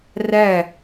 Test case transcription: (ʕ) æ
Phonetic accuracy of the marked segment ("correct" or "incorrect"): incorrect